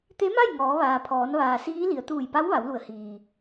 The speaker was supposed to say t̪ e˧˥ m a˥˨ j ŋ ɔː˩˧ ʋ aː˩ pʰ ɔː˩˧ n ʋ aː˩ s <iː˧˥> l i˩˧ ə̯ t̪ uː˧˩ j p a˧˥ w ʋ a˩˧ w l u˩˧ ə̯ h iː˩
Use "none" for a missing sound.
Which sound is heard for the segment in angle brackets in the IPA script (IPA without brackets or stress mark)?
iː˧˥